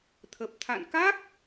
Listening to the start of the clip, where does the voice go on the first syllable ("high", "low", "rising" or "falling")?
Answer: low